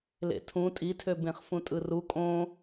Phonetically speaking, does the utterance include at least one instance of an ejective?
yes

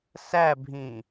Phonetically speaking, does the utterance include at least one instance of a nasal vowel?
yes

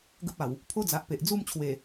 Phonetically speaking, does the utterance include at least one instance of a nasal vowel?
no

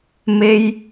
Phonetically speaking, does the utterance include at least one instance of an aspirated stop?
no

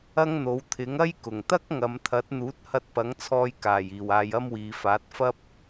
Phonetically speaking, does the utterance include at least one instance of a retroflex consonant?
no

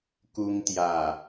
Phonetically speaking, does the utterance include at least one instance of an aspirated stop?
no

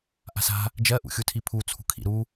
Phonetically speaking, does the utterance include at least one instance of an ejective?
no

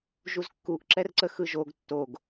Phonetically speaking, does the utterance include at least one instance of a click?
yes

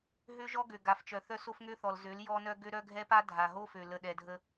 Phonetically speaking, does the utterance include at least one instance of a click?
no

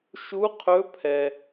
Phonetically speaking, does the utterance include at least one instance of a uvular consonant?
yes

